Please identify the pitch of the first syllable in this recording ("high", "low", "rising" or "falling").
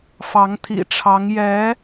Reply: rising